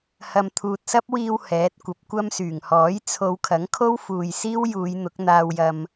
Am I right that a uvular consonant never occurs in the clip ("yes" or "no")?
yes